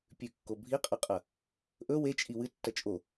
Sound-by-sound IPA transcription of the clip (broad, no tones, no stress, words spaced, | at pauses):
pʲʉkːo bʱiqʼɐqʼɐ | ʔɵ wet͡ʃʼi wɨtːɐ t͡ʃʼo